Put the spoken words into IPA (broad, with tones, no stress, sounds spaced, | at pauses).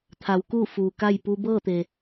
t̪ʰ a˩˧ w k uː˥˨ f uː˩ k a˥˨ j p uː˧ b ɤː˥˨ t̪ e˩